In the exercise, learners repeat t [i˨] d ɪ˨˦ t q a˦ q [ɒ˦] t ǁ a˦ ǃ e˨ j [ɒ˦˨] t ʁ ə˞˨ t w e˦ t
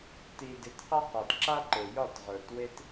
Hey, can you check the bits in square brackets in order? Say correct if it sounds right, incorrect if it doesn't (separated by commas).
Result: correct, incorrect, correct